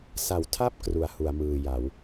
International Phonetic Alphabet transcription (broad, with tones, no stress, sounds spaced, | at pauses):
s a˩˦ w tʰ a˥˩ p̚ k r u˩˦ a̯ h u˩˦ a̯ m ɯː˨˩ j a˩˦ w